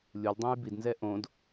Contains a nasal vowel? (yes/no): yes